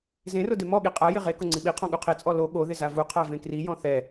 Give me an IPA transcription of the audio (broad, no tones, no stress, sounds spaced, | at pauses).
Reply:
z ẽ r ʊ d e m ɔ ɠ i qʼ a j ɪ ʁ e k ʊ ŋ͡ǀ i ɓ i qʰ ɔ̃ ɠ u qʰ e t͡sʼ ɔ l o ɠ o ð ɪ z a v u qʰ a v ẽ k r i j ɔ̃ θ ɛ